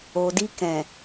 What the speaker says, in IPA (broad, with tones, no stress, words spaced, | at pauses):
o˨di˧kɛ̃˨